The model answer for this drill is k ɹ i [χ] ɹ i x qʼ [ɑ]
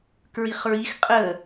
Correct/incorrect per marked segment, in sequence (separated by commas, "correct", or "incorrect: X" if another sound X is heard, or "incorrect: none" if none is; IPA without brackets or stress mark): correct, incorrect: ə